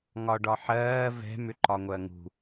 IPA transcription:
ŋ ɒ ɖ ɒ ħ ɜː v ɛ̤ m ʏ ǃ ɒ ŋʷ ɜ ŋ ṳ

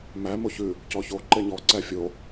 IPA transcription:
m æ m o ç ʉ | c ɔ ç o ǃ e ɲ ɔ ǀ æ fʲ o

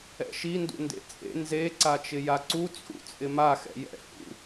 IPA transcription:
ɛ̰ ʃ i n d ṵ n d ḛ t͡sʼ ḛ n z e ǀ a t͡ʃ ɪ j a ǀ u t͡sʼ ṵ t͡sʼ ɪ m a x ɛ̰ j ɛ̰ h ṵ

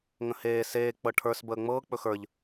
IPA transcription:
ŋ ə̃ h eː s eː k͡p ɤ ʈʰ ə˞ s b əː ŋ͡m ɤː k͡p ɵ x ə˞ ʎ

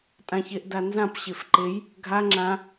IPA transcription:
tʼ ã ç e ʔ d a n z ã p ɕ e f ǃ e j | ɡʱ a ŋ͡ǁ ã

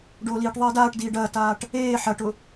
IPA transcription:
ɖ oː l iː ʈ ðˤ eː d aː ʈ d iː ɖ ɐː t aː ʈ | eː ħ ɐ ʈ ʊ

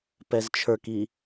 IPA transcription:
p ɛ z t͡ʃʰ ə˞ k i

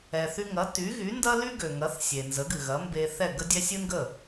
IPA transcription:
ɛ˩ θ y˧ ŋ ɐ˩˥ t y˩˥ ɣ y˩˥ n d ɐ˥ l y˥ ɡ ø˩ ŋ ɐ˩˥ θ sʲ e˩ n z ə˩˥ ɡ ɨ˩ ɣ ɐ˩˥ m b e˧ θ ɛ˥˩ ɡ ə˥ dʲ ɛ˥ sʲ ɨ˥ n ɡ ə˥˩

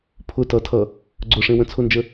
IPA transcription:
pʰ ʊ t ʌ tʰ ʌ | ɡ͡ǀ ʊ ʂ ẽ w ə̃ t͡sʰ ʊ n d͡ʒ ə

